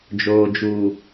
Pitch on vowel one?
low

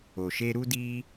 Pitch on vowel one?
low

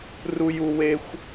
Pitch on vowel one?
high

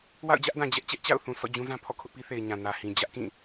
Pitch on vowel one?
falling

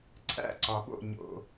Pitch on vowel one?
falling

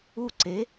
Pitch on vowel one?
falling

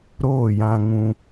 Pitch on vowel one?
falling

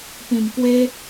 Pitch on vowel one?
low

